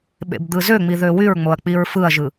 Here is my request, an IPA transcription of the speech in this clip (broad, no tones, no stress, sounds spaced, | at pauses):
ɓ ḛ b d̪ ɯ z ø ŋ͡m i ð ø w y ɹ ŋ͡m o ɐ̯ k͡p i ɹ f ɯ ɐ̯ ʒ ɯ